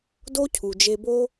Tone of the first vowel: high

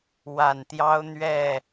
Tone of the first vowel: low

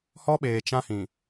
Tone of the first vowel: high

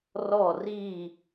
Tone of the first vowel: falling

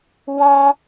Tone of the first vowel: high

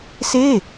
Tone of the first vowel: falling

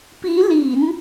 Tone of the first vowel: rising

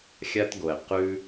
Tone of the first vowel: high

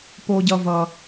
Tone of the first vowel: high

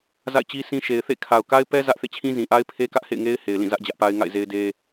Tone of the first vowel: falling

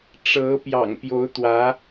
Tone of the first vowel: rising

